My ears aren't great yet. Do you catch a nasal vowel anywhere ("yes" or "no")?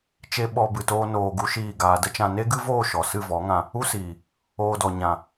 yes